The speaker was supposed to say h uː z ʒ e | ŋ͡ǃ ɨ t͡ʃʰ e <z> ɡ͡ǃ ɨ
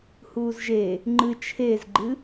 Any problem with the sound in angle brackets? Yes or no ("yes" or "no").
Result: no